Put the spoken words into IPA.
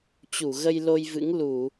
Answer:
t͡ɕ u˧˩ ɣ ə˧ j l o˧ j v ɨ̰˧˥ ŋ l u˧˩˨

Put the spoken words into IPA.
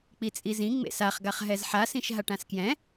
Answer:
k͡p i t͡sʼ i z ĩ ŋ͡m ḛ s a χ ɡ a χ ɦ ɛ z ħ a s ĩ ʃ ɦ a ʈ ã s k j ɛ̃

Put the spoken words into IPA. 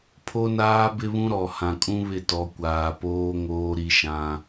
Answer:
pʰ o˦ n aː˦ b ɪ˦ β ũ˦ ɾ ɔ˨ h ã˨ kʼ ũ˦ β ɪ˦˨ t ɔ˨˦ kʷ aː˨ p oː˦ ŋ oː˦ ɾ i˦ ʃ ã˦

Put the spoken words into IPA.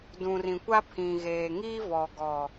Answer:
d ũ˨ r ĩ˨ kʷ a˦ pʰ ĩ˨ ɣ eː˨ ŋ iː˦ v ɔ˨ ɡ ɔ˨

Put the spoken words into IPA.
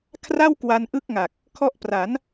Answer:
kʰ r a˥˩ w k w a˦˥ n ʔ ɯ˥˩ k̚ ŋ a˨˩ k̚ | kʰ ɔ˦˥ ʔ p r a˩˦ n

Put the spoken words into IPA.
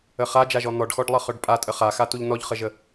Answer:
ə χ a d͡ʒ a ʒ ɔ n̪ ɔ ɖ x ɔ ɖ lˠ ʌ χ œ ɖ pʼ a tʼ ə χ a x a t u ʎ n ɔ ʎ χ ə ʒ ə

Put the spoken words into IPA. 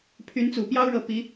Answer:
pʰ y˧˥ n t͡s u˨˩ p j ɑ˥ ʊ̯ ɻ ɤ˧˥ p i˧˥

